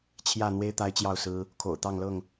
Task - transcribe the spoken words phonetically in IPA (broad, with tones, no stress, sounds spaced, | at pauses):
t͡ɕʰ j ä˥˨ n̪ w e˦ ɪ̯ t̪ a˦ ɪ̯ t͡ɕ j ɑ˥˨ ʊ̯ s ɹ̩˦ | kʰ o̰˨˩ ʊ̯ t̪ ɑ˥˨ ŋ l ɤ˥˨ ŋ